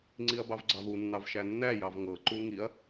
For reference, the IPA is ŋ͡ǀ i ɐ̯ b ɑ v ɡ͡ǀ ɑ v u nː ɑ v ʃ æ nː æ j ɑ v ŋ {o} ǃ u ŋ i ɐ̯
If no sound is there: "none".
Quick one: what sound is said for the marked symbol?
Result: ɤ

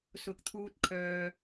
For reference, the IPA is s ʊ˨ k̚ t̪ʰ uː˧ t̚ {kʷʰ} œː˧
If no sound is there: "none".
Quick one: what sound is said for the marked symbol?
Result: kʰ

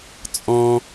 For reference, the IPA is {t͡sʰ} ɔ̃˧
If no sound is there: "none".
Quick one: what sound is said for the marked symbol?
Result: t͡sʼ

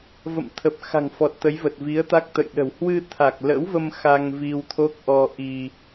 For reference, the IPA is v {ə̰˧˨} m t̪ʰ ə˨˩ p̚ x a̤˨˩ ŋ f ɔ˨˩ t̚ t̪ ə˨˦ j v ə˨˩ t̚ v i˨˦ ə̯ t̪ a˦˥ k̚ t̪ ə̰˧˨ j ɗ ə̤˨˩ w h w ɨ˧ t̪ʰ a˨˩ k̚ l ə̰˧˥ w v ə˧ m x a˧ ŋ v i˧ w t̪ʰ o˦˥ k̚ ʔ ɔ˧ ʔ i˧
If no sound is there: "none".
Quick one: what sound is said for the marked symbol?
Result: ə̰˧˨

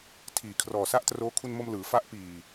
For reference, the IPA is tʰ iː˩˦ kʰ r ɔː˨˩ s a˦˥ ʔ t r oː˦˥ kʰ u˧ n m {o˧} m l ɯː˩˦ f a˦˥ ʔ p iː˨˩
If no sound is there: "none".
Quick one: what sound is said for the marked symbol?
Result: o˧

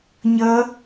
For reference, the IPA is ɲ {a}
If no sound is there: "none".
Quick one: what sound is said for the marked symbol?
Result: ʌ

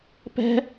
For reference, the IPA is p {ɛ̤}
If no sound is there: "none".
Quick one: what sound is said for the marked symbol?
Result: ɛ̤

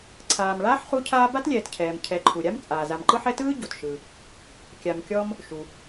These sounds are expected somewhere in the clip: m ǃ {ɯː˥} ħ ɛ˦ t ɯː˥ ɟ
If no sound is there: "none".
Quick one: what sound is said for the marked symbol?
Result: ɯ˥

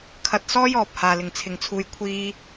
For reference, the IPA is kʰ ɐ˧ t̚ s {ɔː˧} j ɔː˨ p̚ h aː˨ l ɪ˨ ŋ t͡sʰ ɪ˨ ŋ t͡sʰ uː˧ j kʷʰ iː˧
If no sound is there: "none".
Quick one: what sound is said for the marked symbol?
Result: ɔː˥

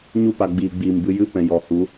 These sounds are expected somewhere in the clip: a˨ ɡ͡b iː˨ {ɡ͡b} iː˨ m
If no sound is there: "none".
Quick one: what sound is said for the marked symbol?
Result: ɡ͡b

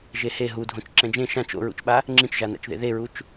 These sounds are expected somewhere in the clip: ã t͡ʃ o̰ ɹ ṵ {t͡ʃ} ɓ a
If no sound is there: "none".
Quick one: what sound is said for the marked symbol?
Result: t͡ʃ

